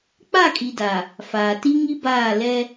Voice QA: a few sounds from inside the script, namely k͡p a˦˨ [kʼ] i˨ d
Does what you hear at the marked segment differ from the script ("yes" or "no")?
no